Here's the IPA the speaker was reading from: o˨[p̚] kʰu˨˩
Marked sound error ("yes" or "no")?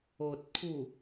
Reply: yes